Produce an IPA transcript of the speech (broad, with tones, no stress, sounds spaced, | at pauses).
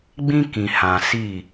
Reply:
ɡ͡b ĩ˦ k ĩ˨ h ã˨ s i˦˨